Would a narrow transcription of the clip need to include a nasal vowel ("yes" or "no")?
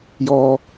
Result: no